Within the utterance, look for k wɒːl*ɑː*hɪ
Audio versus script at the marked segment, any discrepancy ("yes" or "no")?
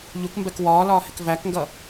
yes